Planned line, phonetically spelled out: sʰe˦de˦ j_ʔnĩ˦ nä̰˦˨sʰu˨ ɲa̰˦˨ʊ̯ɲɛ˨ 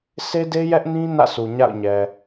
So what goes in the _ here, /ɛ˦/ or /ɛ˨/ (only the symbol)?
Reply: ɛ˦